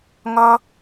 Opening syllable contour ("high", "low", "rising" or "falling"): high